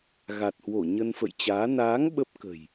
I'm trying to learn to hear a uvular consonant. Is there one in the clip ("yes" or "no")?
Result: no